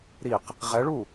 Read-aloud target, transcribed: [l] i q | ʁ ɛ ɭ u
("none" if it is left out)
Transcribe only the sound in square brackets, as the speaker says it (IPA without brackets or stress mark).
ɾ